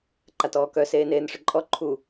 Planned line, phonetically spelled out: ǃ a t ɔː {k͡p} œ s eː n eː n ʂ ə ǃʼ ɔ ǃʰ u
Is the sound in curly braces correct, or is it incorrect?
incorrect